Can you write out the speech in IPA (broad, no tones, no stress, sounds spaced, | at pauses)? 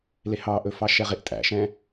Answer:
l e h ɑ ʔ ɵ f ɑ ʃ ɛ ʁ e ʔ tʼ æ̰ ʃ ɛ̃